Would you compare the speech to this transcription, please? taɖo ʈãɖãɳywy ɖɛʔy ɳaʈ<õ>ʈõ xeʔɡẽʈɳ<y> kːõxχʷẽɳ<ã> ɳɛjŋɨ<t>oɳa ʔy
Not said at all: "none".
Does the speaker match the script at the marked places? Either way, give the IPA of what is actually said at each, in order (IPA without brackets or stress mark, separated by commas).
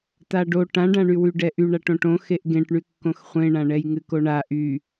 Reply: õ, y, ã, k